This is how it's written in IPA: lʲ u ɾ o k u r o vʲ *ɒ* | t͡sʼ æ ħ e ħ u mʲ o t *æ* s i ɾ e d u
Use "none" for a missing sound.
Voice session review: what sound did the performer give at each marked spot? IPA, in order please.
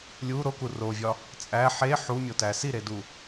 ɒ, æ

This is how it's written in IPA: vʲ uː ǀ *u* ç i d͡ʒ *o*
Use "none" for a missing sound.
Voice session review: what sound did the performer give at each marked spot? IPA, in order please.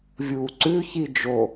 ʉ, o

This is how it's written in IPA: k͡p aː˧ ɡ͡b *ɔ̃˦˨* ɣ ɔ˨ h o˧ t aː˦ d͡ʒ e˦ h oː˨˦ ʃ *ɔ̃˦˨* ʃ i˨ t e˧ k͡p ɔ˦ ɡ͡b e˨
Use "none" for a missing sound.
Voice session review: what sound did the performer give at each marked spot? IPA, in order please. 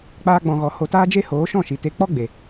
ɔ̃˨, ɔ̃˦˨

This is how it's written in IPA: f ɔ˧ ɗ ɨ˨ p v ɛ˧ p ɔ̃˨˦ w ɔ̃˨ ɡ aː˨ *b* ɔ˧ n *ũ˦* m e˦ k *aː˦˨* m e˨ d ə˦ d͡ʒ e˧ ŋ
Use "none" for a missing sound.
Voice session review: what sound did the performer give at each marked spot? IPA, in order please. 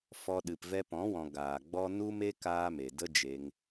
ɡ͡b, u˦, aː˦

